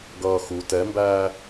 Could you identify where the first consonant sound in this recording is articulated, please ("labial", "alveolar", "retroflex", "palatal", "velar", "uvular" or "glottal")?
velar